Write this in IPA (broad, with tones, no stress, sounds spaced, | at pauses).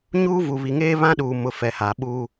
ɲ uː˦ v u˨ β i˨ ŋ eː˦ β ã˦ ɗ uː˨ m ʊ˨ f ɛ˨ h a˨ ɓ uː˦